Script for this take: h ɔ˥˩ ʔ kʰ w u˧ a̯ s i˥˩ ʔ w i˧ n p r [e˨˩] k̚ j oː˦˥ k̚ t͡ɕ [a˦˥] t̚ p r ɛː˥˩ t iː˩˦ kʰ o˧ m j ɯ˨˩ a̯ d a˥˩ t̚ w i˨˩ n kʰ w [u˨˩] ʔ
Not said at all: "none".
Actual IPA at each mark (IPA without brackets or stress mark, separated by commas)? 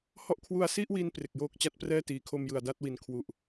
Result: e˨˩, a˦˥, u˨˩